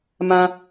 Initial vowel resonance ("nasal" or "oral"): nasal